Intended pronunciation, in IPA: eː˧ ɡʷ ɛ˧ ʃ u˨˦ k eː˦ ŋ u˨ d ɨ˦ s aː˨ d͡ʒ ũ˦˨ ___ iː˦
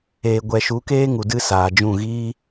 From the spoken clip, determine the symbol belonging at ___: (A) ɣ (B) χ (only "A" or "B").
A